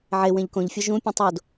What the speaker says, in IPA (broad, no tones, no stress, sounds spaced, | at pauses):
ʕ e w ẽ ʎ k õ ʎ fʲ o ʒ ũ pʲ õ tˤ o d